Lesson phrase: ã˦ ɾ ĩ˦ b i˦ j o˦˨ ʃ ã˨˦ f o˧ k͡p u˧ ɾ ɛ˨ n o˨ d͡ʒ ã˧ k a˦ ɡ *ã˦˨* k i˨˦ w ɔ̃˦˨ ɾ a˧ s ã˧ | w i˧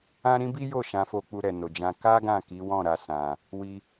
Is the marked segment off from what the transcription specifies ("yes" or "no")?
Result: no